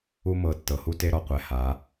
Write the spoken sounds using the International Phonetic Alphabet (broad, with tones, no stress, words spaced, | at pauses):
u˥mɤ˩˧˩ tːɤ˩˧hu˥te˧˥˧ ɾɔ˩qʷɛ˩˧˩ ha˩˧